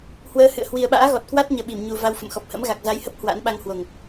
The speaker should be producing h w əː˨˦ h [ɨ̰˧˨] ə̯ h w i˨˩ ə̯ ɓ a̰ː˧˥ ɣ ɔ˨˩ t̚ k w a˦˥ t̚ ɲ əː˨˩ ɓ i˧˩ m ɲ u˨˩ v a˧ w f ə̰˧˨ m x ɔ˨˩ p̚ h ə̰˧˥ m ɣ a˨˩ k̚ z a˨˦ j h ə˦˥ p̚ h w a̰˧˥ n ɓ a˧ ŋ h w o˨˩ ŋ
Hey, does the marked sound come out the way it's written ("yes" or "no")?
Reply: yes